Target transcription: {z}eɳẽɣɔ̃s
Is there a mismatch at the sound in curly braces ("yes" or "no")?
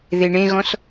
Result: yes